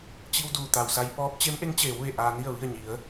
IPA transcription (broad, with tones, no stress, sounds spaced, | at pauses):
t͡ɕ i˧ w d uː˩ t̪ a˩ w s a˧ j p ɔː˧˥ p̚ t͡ɕ e˧˥ m ʔ e˧˥ ŋ t͡ɕ eː˩˧ w ʋ e˧˩ ʔ aː˧ n i˥˨ ə̯ ʋ i˥˨ ə̯ ɲ i˩˧ ə̯